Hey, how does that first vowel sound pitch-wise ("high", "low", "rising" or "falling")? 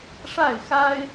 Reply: falling